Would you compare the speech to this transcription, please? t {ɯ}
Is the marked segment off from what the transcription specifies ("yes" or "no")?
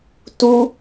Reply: yes